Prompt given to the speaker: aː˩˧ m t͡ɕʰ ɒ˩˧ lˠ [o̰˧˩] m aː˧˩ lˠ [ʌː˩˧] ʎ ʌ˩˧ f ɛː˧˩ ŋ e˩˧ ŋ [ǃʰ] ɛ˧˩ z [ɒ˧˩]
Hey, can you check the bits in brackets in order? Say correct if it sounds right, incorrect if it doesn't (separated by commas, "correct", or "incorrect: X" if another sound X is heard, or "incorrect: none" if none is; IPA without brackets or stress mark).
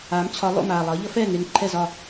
correct, correct, correct, correct